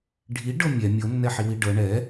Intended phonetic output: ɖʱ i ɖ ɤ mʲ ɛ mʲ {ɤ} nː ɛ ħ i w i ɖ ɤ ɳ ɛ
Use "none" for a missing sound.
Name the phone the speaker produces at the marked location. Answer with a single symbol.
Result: ɤ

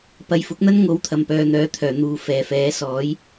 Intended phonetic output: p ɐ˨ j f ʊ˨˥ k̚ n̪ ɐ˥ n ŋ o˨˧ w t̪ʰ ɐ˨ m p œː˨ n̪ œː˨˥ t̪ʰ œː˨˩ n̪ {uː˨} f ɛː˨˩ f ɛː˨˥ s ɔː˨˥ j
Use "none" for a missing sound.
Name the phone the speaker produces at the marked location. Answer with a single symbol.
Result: uː˨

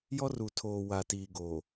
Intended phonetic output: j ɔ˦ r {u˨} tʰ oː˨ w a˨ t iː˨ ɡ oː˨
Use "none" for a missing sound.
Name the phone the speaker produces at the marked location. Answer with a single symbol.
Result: u˨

